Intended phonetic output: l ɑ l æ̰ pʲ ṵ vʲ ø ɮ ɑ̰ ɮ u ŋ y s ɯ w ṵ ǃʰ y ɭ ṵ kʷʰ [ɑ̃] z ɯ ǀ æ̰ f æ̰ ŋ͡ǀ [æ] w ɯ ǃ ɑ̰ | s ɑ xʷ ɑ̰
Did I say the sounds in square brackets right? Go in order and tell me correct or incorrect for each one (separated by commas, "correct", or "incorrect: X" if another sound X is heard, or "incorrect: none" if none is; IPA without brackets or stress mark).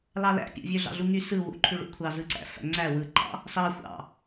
incorrect: ɑ, correct